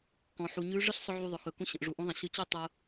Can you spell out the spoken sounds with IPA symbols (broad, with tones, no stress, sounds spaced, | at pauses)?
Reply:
k ɔ̃˩ ħ u˩ ɲ ʉ˧˥ ʐ ɯ˥ ɬ sˤ ʊ˧ ʕ u˧ ðˤ ʊ˩˧ x ɵ˩ k ũ˧ ɕ ə̃˩ ʔ ʐ u˩ ʔ ũ˧˥ ðˤ ə̃˩ ɕ ɯ˧˥ t͡ɕ ɵ˥ tˤ ʊ˧